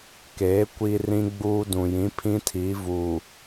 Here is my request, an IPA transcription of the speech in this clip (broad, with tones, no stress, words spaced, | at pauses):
keː˨˦ kʷi˦rĩ˦ɡ͡buː˦ dũ˨jĩ˨˦ pʰĩ˦tʰi˨˦vu˨